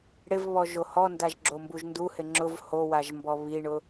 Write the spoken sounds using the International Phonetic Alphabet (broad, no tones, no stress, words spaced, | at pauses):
ɽɪvβɔ ʒohɔndaʒ ɡ͡ǁombuʒnduhɪ ŋ͡ǁʊv howaʒ mbɔβiɳʊ